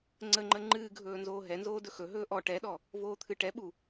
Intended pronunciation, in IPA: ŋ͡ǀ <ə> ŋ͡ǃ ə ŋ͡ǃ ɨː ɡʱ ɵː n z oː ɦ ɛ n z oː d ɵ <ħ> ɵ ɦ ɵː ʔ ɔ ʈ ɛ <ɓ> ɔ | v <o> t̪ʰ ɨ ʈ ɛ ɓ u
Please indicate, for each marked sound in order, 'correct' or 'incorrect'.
correct, incorrect: x, incorrect: ɗ, incorrect: oː

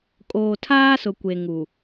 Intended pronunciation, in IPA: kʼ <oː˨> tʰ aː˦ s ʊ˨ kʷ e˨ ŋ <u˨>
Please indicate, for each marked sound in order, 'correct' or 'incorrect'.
correct, correct

